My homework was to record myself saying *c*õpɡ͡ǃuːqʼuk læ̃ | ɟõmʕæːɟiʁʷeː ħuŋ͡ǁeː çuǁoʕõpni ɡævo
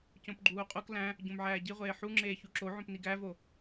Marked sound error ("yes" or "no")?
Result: no